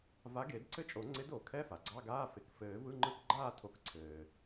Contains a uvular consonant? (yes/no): no